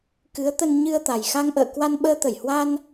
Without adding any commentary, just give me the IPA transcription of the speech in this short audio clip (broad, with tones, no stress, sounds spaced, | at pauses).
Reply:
k ɨ˨˦ ə̯ t̪ ə˧ n ɲ ɨ˧ ə̯ t̪ a˨˩ j x a˧ ŋ ʔ ə̰ː˧˨ k w a˧ n ɓ əː˧ t̪ ə˧˩ j h w a˧ n